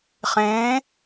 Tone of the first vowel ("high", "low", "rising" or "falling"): rising